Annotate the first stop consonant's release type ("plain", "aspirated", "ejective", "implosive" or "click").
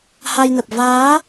plain